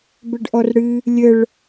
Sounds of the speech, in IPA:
b ɘ ɖ ʔ ɔ r ɽ ɨ | lʲ ə ɭ

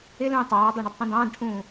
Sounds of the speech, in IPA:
ɪ l ũː tˤ ɑː dˤ ɑ ɳ ɪ d tˤ ũ d ɑ̃ː d ʈʰ ũː

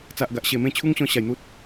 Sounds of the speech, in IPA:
t͡s a˨ ʔ ɡ a˨ ʔ ɕ e˨˩ m ẽ˥˧ t͡ɕʰ u˦ ŋ ɕ ɔ̃˥˧ ɕ a˨˩ j n̪ u˦ t̚

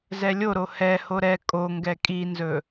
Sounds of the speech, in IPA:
z ɛ lʲ o ɾ o h ɛ h o ɾ ɛ kʼ o ŋ ɡ ɛ kʼ i n z ɵ

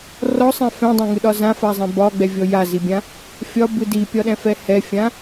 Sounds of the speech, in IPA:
r ɔ sˤ ɛ̃ f ɛ̃ dˤ ã ŋ ɯ ɗ ɒ z ã f a zˤ ɛ̃ b ɒ ɡ͡b ɛ vʲ ɔ j a z i bʲ ã | fʲ ɒ b ɯ d i pʲ ɒ ɗ ɛ̃ f ɛ h ɛ fʲ ã

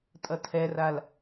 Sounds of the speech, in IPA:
tʼ ʌ tʰ ɛ r a l

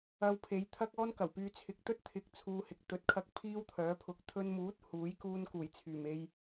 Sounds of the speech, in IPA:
ɐ˧ w pʰ e˨˧ j t̪ʰ ɐ˥ k̚ ɔː˥ n k ɐ˨˩ w p yː˧ t͡sʰ ɪ˨ k̚ t̪ ɵ˥ t̚ t̪ʰ ɪ˧ k̚ t͡sʰ uː˧ h ɪ˨ k̚ t̪ ɵ˨˥ t̚ kʰ ɐ˧ k̚ pʰ iː˥ w t̪ʰ œː˨˥ pʰ ʊ˨˥ k̚ t̪ʰ ɵ˧ n m uː˨˥ t̚ h uː˨˥ j k uː˧ n k uː˨˩ j t͡sʰ yː˨˩ m e˧ j

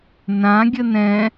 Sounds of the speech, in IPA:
n ã ɡʲ ə n ɛ̃

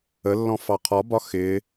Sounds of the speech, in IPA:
ə lː ɔ̃ f ɑ qʰ ɒ b ɒ x ɪ

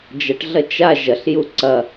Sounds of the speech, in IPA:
d͡ʒ ɐ ʈ ɮ ɐ t͡ʃ a ʒ ɐ ɬ j u ǀ ɐ

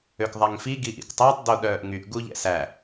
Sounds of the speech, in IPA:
ø k ðˤ æ ŋ f i ɡ i ʔ ḭ k tˤ æ tˤ d o ɗ œː ʔ ŋ y ʔ ɡ u ʎ ɛ̰ s æ

